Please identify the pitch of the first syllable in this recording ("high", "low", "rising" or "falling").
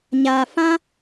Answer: low